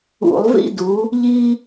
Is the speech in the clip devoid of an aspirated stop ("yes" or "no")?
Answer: yes